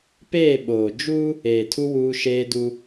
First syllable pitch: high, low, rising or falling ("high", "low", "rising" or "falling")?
falling